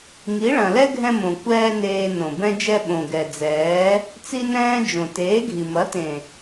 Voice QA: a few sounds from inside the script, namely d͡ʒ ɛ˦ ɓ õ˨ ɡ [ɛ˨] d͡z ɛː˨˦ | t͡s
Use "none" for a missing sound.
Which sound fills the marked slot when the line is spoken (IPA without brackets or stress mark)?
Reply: ɛ˨